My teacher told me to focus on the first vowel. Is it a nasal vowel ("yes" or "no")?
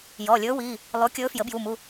no